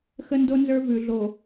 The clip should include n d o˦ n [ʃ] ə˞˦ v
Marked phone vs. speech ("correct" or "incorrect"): incorrect